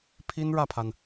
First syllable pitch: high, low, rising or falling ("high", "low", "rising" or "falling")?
high